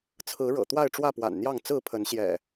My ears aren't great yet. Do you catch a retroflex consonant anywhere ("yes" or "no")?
yes